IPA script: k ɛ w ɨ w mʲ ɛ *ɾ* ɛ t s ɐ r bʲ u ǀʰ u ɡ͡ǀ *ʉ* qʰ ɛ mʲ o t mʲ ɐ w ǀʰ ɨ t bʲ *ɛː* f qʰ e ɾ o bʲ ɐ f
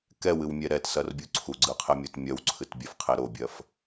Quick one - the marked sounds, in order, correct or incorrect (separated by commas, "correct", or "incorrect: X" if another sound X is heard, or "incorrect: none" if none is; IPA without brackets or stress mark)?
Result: correct, incorrect: ɨ, incorrect: ɛ